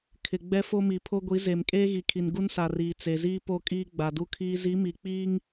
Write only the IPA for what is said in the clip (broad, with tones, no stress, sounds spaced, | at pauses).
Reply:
kʰ ɪ˨ ɡ͡b ɛ˦ f o˦ m i˨ pʰ o˦ ɡʷ i˨˦ z e˨ m kʼ eː˦ ɣ i˨ kʰ i˨ n ɡ u˦ n s a˨ r iː˨ t͡s e˨ z iː˦ p o˦˨ kʼ iː˦ ɡ͡b a˨ d u˦ kʰ iː˦ z i˨˦ m i˨ k͡p iː˦ ŋ